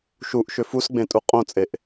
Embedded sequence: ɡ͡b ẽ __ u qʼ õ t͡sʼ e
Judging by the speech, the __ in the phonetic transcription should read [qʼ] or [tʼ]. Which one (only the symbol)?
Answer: tʼ